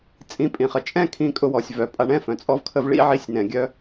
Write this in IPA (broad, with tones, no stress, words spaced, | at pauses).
t͡sʼĩ˧pʼĩ˩χə˩ t͡ʃʼɛ̃˥kʰĩ˧kʼʊ˧ wɔ˩sʲ vœ˩pʼa˧ɳɛ̃˥fœ̃˩ t͡sʼɔ˧vkʰə˧vɭḭ˥ ʕi˧sʲnɛ̃˩ɡʲœ˧